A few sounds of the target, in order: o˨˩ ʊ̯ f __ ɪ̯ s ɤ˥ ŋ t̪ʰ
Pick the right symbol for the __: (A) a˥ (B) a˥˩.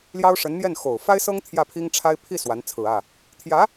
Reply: A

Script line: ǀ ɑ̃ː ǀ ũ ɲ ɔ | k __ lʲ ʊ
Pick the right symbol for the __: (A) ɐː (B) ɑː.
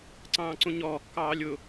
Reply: B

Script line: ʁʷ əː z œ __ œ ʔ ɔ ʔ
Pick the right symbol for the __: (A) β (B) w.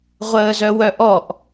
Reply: B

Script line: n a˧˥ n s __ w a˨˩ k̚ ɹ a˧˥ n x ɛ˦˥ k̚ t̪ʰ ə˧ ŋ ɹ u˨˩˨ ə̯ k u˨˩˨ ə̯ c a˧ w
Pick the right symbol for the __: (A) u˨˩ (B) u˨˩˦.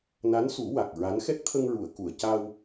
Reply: B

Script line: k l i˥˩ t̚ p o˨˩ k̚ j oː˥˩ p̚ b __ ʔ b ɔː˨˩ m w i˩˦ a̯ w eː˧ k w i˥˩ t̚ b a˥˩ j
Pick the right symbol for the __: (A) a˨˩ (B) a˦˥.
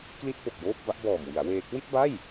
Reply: B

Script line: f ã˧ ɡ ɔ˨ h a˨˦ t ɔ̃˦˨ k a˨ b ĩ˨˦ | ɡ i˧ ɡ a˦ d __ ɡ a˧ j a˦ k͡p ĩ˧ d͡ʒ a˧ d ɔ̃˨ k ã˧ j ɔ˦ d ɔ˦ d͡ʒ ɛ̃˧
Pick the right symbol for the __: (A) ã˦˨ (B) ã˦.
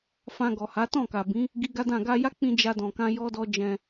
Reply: A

